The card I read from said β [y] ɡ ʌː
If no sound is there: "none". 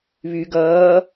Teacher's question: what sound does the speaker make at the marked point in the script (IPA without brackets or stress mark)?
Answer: y